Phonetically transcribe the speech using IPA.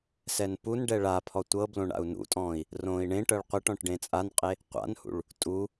s ɛ n p u n ɖ ɛ ɭ a pʰ ɔ tʷ ɤ b l õ ɳ a̰ u̯ n ṵ tʼ ɔ̃ː i̯ | r õː i̯ ɳ ẽ ʈ ɤ ɭ qʷ e ʈ ɔ̃ ʈ ɖ ẽ t͡sʼ a n qʼ e | qʷ a̰ n h ṵ ɭ | tʼ u

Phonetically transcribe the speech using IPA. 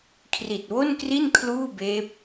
kʰ r i˨˩ t̚ w o˥˩ n k r i˥˩ n kʰ l uː˥˩ b eː˦˥ p̚

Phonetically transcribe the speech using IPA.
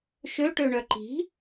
ʃ ø ʈ ø ɳ œ ǃ i̤

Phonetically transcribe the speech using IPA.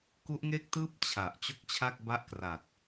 k u˦˥ ʔ ŋ e˥˩ k̚ t ɯː˥˩ p̚ t͡ɕʰ a˨˩ ʔ t͡ɕ o˥˩ k̚ t͡ɕʰ a˥˩ k̚ b a˥˩ ʔ k r a˨˩ t̚

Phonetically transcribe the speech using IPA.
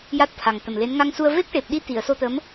j a˦˥ t̚ t̪ʰ a˨˩ ŋ t̪ ə˨˩ m l e˧˥ n ŋ a˧ ŋ s u˧ ə̯ v e˦˥ k̚ ʈ e˨˩ p̚ ɗ i˧˥ t̪ i˨˩˨ ə̯ s o˧ t̪ ə˧˥ m

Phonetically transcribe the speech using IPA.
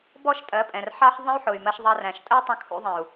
b ɔ˦ ʃ tʼ ɜ˨˦ pʼ ɛ̃˨ r ħ ɑ˦ ħ ðˤ ə̃˦ y̯ ħ ʊ˨ y̯ m ɜ˧ ʃ ðˤ ɑ˧ r æ̃˨ ʃ tʼ ə˦ y̯ tˤ ə̃˧ kʰ ṵ˧ ðˤ ɛ̃˨ u̯

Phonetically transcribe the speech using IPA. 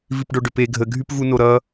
v i p ɖ o ɖ ʏ p e ɡʱ ə ɡʱ y p v u n o ɾ ʌ

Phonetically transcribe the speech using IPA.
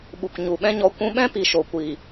ɓ u˨ k ɲ u˨ ɓ ɛ̃˦ ɲ ɔ˧ kʷ ũ˧ ɓ ɛ̃˦ p i˨ ʃ o˨ kʷ i˨

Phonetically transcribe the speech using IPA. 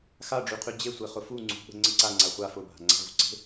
x a ɖ͡ʐ y qʰ y d͡ʑ e sʷ e χ ʊ f u ŋ͡ǀ ṳ ɓ ə̤ ŋ͡ǀ ə ǀ a ŋ͡ǀ a χʷ a f ʊ bʱ a̤ ŋ͡ǀ a̤ v ṳ ǀ e̤

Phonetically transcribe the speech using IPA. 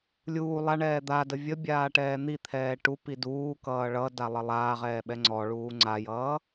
lʲ uː lˠ a ɳ ɛː d̪ a d ə vʲ ə bʲ aː ʈ ɛː n̪ i t̪ʰ ɛː ʈ u p i d uː k ʌː ɭ ʌ d a lˠ ʌ lˠ aː ʁ ɛː ɓ ɛ ŋ͡ǀ ɔ ɭ uː ŋ͡ǀ a j ʌː

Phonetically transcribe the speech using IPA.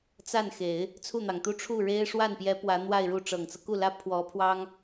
t͡s a˥˩ n x e˨˩˦ ɪ̯ | t͡sʰ u˥˩ n̪ ɑ˩ ŋ t̪ u˥ ʈ͡ʂʰ u˥˩ ɻ e˥ ɪ̯ ʂ w a˥˩ n p j ɛ˧˥ p w ä˧˥ n̪ w a˥˧ ɪ̯ ɻ u˥˩ ʈ͡ʂ ɤ˨˩ ŋ t͡s ɤ˦ k u˥˩ l ä˥ pʰ w ɔ˧˥ pʰ w ɑ˥ ŋ

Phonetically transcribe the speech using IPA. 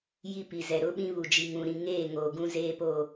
j i˦ p i˨ z ɛ˨ ɾ ʊ˦ ɓ ĩ˦ β u˨ d͡ʒ i˨ ŋ ũ˨ ɾ ĩ˨ ŋ eː˦˨ ŋ oː˨ ɡ ũ˦ z eː˦ p o˦˨

